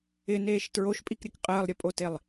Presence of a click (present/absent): absent